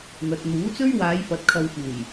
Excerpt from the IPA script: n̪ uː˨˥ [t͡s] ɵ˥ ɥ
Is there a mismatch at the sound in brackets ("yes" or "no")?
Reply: no